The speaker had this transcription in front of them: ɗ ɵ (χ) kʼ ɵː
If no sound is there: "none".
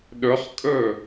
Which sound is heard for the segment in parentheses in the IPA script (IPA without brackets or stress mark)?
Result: χ